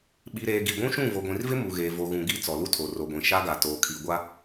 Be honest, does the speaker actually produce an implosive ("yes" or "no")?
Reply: yes